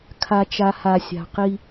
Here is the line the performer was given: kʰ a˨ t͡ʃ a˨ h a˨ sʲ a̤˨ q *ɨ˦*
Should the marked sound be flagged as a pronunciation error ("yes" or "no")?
yes